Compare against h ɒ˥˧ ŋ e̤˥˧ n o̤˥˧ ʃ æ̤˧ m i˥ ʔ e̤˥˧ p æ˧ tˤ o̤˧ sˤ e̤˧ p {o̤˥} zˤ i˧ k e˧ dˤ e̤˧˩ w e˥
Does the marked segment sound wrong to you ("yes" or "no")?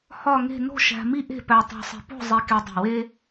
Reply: yes